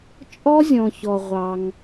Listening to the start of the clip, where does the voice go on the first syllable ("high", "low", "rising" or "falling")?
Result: high